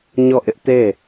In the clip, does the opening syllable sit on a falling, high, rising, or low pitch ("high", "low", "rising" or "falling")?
falling